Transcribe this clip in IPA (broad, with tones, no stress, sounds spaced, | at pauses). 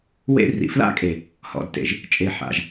w ḛ˦ r ḭ˨ f l a̰˦ kʼ e˨ | h ɔ̰˨ d t ḛ˨ ʒ | t͡ʃʼ e˨ ħ a̰˨ ʒ